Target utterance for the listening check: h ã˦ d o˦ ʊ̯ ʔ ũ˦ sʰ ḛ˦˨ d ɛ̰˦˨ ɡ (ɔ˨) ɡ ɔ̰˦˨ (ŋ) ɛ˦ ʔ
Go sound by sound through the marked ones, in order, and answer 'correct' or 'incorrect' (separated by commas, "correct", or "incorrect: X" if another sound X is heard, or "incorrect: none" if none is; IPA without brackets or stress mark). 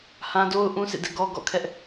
incorrect: ɔ˦, incorrect: kʰ